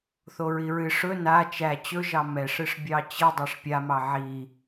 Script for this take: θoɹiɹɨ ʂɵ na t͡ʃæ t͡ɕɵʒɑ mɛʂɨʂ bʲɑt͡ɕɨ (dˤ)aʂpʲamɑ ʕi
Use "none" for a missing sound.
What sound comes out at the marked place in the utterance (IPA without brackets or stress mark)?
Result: dˤ